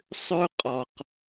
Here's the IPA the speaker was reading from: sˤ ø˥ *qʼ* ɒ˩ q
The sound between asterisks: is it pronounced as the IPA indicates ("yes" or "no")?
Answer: yes